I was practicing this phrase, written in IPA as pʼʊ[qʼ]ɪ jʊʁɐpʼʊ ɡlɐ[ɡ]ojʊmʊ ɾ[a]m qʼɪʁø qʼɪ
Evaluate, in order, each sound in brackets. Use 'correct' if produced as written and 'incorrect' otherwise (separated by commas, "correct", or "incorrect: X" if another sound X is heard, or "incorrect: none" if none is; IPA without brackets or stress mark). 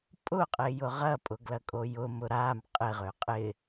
correct, incorrect: kʼ, correct